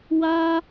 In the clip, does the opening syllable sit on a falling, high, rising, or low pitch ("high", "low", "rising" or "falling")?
high